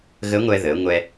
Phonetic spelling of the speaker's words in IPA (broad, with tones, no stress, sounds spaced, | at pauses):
ɣ ə˧˥ ŋʷ ɛ˧ ð ə˩˧ ŋʷ ɛ˧